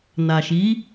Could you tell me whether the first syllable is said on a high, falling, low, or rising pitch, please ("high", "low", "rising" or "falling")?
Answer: low